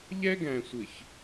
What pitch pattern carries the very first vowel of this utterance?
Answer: high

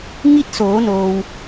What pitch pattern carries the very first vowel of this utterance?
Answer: falling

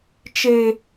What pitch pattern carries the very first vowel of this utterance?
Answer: high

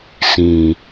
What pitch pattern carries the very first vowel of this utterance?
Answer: low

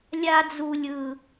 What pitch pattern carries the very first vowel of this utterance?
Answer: high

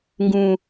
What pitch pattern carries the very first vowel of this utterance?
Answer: low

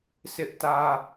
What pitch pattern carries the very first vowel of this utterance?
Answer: high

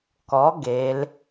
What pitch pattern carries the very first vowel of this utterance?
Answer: rising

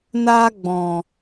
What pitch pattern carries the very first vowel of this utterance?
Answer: high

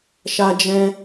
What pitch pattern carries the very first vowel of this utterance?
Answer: high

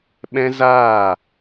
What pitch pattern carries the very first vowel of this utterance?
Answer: high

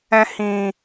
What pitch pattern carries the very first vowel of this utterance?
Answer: low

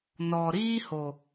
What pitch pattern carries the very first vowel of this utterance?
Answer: low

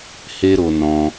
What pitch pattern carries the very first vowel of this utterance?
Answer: high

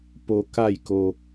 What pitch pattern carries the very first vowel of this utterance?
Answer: low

